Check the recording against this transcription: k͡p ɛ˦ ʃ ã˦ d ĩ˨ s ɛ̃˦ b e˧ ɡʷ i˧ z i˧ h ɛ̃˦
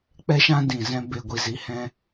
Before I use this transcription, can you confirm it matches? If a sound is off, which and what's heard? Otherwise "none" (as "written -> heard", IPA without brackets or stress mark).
s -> z